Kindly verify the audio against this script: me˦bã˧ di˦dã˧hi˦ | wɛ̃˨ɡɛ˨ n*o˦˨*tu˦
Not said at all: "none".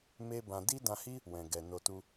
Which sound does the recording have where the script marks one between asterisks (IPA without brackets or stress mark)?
o˧